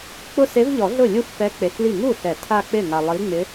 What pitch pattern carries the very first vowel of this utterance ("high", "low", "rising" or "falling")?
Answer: falling